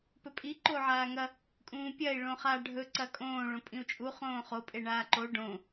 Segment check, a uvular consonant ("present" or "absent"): present